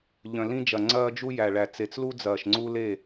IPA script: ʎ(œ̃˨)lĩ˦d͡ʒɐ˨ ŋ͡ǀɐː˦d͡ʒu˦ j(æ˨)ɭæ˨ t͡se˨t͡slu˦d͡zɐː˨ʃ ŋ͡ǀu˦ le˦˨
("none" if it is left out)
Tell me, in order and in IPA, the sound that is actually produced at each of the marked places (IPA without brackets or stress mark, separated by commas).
œ̃˨, æ˨